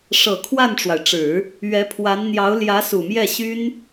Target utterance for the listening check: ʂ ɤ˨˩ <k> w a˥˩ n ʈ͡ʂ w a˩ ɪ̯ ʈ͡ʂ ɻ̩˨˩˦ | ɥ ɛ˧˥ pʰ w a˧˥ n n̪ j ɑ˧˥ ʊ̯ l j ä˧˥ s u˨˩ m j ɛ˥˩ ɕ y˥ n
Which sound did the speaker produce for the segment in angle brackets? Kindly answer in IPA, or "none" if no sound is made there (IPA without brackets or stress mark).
kʰ